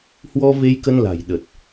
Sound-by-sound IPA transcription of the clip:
hwɔ˧ ve˧jkə˧nla̤˨˩j ɗə˨˩t̚

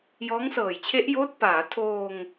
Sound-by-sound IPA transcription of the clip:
jɔː˦˥ŋsɤː˨˩jt͡ɕʰe˦˥ʔjoː˦˥t̚ paː˩˦tʰoː˧ŋ

